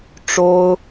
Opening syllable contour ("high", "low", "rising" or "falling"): high